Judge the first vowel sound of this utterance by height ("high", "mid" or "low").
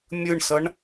high